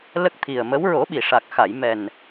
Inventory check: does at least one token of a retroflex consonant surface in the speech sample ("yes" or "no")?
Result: yes